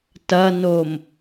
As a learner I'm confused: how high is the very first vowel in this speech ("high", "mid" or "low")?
low